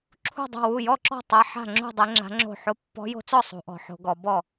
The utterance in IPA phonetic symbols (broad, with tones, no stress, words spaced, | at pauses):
ǁʰṳ˥˨dˤo̤˥˨wu˥˨ jɔ˥˨ǁɔ̤˥˨tˤa˧˥ ħa̤˥˨ŋ͡ǁṳ˥˨dˤe˧˥ ŋ͡ǁa̤˧˥ŋ͡ǁo̤˥˨ ħo˧˥pːɔ̤˧˥jo̤˧˥t͡sɔ˥˨ sˤṳ˧˥ʔɔ̤˧˥ħo̤˧˥ɡɔ˧˥ bɔ˥˨